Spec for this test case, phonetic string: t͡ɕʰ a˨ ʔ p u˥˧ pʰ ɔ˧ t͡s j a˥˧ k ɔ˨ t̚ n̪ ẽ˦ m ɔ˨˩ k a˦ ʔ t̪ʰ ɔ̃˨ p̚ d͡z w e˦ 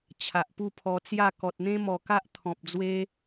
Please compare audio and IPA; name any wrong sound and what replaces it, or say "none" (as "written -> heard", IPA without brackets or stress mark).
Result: none